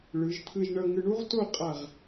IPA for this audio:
ɭɯ˩˧ʒt̪ʰɯ˧ʒɳʌ˧ ŋɯ˧ɳu˥ʁto˥˧qʼa˧˩ʁ

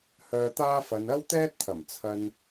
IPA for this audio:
hœː˧t̪aː˥fɐ˨˧n ɐ˥wt̪ɛː˥t̚t̪ʰɐ˨˩m t͡sʰɐ˨n

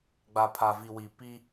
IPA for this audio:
ɡ͡ba˨pʰa˨vi˨ wi˨ pi˦

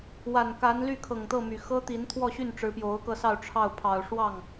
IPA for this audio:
wa˨˩nka˧˥n ly˥˩kʰɤ˨˩ŋt̪ɤ˥˩ my˨˩xɤ˥t̪i˧˥n t̪ʰwɔ˥˧ɕy˥˩nʈ͡ʂɻ̩˧˥ pjo˧˥ʊ̯kɤ˧sɑ˥˧ʊ̯ ʈ͡ʂʰɑ˥˩ʊ̯pʰɑ˨˩ʊ̯ ʂwɑ˥˩ŋ

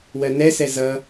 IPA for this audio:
wɜnɛsɛ zʌ

